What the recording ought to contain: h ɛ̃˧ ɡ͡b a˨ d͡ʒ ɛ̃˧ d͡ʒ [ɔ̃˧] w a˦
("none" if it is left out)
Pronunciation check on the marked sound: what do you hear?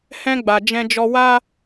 ɔ˧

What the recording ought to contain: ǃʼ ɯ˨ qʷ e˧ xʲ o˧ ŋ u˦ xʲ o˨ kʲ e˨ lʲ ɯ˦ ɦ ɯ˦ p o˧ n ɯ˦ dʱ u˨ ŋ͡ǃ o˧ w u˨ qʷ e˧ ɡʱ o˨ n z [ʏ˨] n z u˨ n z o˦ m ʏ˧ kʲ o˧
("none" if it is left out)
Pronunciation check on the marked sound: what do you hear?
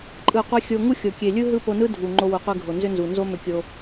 ʏ˦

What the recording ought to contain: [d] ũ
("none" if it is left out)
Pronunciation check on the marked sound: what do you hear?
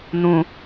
n̪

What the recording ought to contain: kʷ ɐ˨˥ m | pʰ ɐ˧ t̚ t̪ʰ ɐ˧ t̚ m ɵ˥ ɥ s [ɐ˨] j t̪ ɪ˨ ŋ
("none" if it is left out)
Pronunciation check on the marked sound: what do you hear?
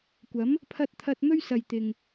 ɐ˨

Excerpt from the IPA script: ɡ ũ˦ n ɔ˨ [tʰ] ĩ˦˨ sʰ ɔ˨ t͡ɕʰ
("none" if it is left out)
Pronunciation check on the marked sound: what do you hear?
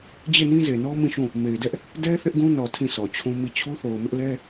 tʰ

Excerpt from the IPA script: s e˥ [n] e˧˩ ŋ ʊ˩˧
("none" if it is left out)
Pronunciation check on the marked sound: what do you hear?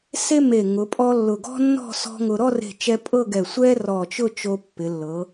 m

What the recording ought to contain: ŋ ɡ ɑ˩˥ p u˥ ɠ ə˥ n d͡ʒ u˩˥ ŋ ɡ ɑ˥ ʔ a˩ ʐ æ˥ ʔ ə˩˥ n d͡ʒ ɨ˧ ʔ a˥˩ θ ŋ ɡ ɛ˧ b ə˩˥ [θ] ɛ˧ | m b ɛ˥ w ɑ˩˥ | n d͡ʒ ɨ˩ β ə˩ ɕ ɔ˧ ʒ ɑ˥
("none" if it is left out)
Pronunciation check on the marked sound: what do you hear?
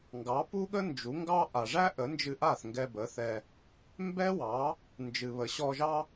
θ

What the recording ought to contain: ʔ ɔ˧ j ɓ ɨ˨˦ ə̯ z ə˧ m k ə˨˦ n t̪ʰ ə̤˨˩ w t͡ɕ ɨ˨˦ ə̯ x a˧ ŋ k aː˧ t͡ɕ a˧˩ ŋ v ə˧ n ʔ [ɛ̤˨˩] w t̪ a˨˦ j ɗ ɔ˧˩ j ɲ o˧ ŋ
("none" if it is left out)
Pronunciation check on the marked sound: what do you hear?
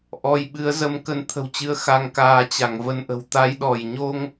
ə̤˨˩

